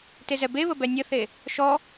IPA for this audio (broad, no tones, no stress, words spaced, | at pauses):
tezɛbeβə bɛnʲəθe | ʃɔ